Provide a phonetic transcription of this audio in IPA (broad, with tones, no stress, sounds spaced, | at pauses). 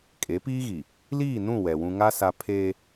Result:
kʼ e˨˦ p iː˦ ɣ i˨ | l iː˦˨ n ũ˦˨ w ɛ˨ w ũ˦ ŋ a˦ s a˦ pʰ e˦